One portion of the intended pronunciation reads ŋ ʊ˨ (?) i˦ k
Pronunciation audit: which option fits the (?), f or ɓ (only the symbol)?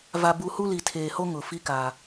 f